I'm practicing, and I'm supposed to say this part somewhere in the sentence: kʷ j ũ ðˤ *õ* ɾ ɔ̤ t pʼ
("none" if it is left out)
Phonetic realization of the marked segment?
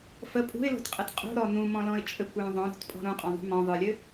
õ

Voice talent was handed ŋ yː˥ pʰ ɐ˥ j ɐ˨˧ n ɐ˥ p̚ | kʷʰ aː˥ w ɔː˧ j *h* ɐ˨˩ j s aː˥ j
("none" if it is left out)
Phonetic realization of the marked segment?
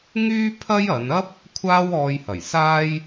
h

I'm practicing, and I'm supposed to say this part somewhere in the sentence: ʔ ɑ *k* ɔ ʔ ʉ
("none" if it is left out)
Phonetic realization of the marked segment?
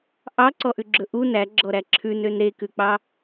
ǀ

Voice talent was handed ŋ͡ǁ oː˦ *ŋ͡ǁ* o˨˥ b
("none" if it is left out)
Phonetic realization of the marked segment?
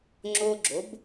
ɡ͡ǁ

